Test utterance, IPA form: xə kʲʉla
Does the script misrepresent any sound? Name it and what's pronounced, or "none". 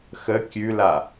none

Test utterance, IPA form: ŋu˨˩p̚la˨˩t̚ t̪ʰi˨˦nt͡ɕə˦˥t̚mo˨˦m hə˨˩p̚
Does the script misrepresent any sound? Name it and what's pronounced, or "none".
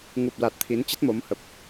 none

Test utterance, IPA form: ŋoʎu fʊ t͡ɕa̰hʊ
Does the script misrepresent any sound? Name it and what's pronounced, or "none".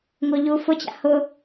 none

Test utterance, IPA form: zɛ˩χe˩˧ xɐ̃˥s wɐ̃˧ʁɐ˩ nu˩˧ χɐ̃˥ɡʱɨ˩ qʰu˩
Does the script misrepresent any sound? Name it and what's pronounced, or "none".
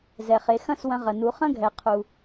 ɨ˩ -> ɛ˩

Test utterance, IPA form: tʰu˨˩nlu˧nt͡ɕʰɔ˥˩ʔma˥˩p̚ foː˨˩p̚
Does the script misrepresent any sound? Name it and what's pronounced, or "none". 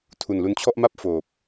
none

